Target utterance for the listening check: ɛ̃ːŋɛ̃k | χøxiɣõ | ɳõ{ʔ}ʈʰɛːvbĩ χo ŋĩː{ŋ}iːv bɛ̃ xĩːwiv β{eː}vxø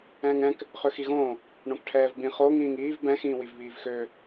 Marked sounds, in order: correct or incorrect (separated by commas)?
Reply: incorrect, correct, incorrect